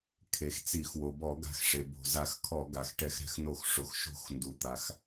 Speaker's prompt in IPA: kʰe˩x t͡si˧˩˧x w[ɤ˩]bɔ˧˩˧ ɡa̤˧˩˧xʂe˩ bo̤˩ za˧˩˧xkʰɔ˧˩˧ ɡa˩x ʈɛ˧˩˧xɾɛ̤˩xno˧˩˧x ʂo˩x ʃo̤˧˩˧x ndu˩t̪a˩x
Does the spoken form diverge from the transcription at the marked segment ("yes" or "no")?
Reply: yes